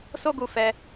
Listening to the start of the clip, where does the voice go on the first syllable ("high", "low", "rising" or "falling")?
high